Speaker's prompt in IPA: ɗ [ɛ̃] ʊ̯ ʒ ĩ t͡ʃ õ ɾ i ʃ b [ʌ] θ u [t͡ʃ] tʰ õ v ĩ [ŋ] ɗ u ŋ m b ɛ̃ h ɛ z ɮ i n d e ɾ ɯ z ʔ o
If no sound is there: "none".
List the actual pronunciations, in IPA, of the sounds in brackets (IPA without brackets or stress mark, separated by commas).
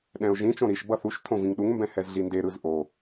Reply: ɛ̃, ʌ, ʃ, ŋ